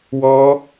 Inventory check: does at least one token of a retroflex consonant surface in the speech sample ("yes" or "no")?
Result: no